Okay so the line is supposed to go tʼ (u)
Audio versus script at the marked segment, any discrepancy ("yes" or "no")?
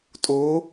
yes